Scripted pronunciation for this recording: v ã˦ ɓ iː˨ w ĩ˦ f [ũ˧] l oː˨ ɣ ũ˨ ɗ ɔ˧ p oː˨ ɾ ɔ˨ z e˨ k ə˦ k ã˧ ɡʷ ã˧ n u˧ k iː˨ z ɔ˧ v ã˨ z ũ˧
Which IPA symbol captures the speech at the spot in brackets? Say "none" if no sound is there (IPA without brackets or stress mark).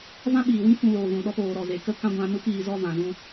ũ˧